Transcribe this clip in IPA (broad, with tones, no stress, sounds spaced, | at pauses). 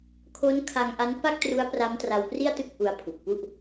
kʰ o˦˥ n kʰ a˧ ŋ ʔ a˦˥ n p a˥˩ k̚ t r u˦˥ a̯ p r a˦˥ m t r a˧ w p r i˥˩ a̯ t ɯ˥˩ k̚ ʔ u˧ a̯ pʰ u˨˩ k̚ p u˥˩ ʔ